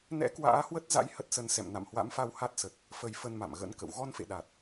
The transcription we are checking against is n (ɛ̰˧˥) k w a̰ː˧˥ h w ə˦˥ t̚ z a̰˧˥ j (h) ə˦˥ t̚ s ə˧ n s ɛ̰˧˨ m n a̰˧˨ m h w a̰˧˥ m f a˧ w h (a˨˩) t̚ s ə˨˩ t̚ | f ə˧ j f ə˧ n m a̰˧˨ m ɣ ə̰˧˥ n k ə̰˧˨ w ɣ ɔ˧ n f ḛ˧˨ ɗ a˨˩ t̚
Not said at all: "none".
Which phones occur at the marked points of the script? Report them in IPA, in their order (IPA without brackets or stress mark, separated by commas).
ɛ̰˧˥, h, a˦˥